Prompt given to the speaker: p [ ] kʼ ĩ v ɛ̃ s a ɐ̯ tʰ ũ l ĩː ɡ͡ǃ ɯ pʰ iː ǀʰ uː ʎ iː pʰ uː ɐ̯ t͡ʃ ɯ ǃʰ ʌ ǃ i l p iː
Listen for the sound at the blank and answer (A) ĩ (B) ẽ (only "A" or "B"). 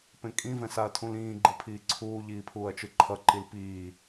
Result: B